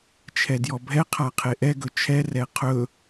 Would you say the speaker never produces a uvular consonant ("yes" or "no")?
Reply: no